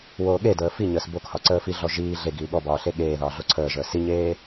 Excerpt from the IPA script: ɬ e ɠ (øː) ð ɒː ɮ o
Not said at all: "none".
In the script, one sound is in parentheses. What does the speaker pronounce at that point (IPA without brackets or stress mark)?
eː